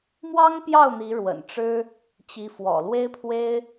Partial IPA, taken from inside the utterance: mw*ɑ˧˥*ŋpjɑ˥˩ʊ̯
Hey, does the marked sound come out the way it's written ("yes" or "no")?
no